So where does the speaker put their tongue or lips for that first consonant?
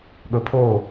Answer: velum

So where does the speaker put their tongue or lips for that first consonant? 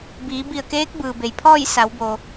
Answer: lips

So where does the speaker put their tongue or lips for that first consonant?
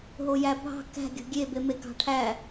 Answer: throat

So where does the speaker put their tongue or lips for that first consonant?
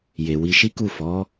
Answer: palate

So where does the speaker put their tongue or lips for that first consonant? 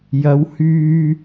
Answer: palate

